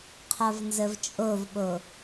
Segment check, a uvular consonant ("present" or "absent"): present